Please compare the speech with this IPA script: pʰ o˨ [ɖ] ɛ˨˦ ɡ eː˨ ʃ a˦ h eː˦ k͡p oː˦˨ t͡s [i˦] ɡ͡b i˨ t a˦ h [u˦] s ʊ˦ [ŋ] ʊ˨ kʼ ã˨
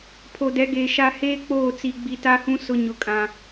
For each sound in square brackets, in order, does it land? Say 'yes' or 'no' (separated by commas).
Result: no, no, no, no